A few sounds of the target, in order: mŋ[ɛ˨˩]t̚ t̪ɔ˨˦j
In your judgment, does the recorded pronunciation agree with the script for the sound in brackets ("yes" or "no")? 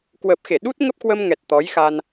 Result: yes